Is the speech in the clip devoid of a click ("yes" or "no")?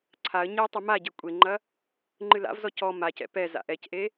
no